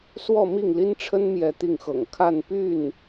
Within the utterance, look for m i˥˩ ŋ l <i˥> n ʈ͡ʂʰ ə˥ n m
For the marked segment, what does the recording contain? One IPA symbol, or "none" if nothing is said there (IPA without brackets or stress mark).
i˥